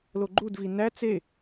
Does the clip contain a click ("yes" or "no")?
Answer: yes